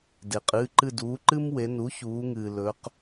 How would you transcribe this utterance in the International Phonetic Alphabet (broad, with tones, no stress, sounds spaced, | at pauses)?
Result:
d e˩ qʼ ɨː˩˧˩ ǃ ɨ˦˨ d uː˩˧ ǃ ɨ˦ m w e˩˧ n u˩˥ ç uː˩˧ ŋ ɨː˩ l ɵ˩˧ q